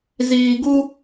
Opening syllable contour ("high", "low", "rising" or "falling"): low